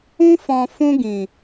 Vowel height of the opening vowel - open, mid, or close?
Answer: close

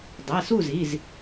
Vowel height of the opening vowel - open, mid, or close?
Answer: mid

